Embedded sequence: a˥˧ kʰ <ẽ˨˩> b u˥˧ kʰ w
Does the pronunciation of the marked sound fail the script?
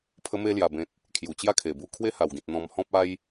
yes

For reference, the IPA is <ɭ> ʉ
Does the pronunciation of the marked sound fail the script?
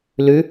yes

